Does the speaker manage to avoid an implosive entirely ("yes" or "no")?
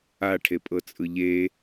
yes